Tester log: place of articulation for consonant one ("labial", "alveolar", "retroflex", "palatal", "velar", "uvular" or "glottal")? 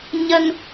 palatal